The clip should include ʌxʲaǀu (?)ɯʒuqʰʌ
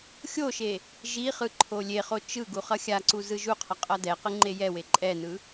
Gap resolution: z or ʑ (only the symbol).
z